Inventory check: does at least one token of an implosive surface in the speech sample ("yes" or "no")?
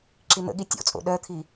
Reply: yes